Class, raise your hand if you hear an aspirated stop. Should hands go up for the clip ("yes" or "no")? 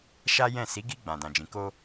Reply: no